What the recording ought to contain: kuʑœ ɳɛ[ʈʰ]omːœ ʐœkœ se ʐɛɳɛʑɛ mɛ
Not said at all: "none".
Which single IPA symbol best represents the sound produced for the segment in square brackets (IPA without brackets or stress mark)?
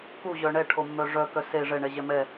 ʈʰ